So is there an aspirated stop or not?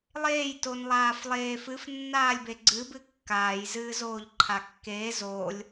yes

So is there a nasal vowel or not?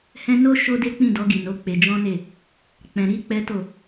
yes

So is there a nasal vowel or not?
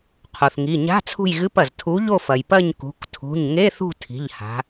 no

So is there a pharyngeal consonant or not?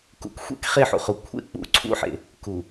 yes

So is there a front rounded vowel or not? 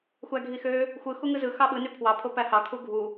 yes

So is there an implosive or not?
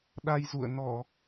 yes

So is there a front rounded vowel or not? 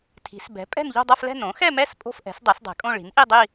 no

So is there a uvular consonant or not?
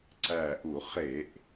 yes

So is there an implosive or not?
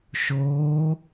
no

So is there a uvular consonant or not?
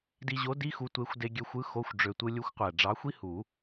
yes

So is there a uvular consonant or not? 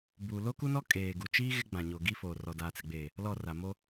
no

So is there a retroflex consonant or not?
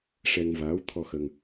yes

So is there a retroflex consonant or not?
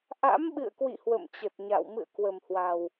no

